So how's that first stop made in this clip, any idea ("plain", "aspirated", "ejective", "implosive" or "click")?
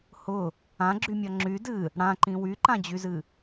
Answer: click